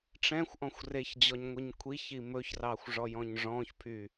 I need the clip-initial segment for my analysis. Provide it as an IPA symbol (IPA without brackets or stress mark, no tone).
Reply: ʈ͡ʂ